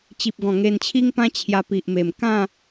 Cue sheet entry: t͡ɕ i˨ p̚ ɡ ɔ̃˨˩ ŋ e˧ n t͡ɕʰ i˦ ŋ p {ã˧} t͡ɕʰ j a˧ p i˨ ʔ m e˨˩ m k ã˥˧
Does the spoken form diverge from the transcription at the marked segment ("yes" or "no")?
yes